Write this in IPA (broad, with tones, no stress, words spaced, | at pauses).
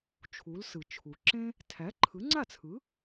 t͡ʃʰu˩˥lsɯ˩t͡ʃʰu˩ ǁẽ˥ | tʰæ˩˥ǃʰɯ˩˥ŋ͡ǀa˥˩t͡sʰɯ˩˥